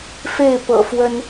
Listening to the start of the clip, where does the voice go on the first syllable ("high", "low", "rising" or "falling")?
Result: falling